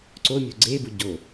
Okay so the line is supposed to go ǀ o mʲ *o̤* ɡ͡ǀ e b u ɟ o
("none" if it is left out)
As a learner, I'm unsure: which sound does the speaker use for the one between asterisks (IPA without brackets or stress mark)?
o̤